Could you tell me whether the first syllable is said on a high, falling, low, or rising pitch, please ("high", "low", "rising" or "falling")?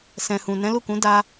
low